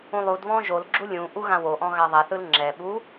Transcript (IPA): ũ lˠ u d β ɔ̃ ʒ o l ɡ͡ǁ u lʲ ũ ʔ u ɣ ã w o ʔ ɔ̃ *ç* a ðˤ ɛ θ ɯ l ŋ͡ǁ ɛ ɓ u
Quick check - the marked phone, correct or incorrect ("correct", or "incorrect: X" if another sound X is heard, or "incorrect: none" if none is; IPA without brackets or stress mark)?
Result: incorrect: ɣ